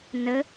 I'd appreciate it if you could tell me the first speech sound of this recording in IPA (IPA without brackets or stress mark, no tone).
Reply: n